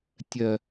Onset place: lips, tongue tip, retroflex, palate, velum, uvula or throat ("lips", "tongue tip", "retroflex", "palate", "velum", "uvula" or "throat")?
tongue tip